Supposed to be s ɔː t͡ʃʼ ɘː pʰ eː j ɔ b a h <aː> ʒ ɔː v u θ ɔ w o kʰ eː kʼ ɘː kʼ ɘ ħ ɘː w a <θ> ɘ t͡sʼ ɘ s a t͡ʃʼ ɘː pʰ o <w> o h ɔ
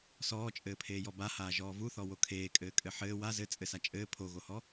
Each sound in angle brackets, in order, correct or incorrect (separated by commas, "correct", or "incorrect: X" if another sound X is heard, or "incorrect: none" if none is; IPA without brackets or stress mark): correct, incorrect: z, incorrect: ɣ